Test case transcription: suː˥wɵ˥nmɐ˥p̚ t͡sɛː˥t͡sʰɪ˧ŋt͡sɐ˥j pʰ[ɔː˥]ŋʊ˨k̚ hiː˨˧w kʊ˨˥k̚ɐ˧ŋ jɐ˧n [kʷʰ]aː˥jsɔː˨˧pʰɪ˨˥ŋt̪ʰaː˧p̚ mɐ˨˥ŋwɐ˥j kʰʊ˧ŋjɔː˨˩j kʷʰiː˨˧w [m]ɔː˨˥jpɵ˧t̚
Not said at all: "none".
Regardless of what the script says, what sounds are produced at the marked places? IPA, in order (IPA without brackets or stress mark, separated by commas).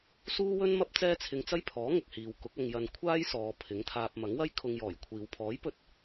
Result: ɔː˨˥, kʷʰ, pʰ